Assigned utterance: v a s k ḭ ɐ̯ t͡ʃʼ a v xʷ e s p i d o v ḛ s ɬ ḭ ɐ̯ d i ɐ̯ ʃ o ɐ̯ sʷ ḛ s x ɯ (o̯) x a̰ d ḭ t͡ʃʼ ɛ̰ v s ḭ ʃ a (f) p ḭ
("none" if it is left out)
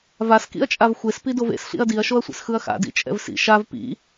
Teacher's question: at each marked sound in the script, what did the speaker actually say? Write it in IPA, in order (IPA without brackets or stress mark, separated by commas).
ɐ̯, v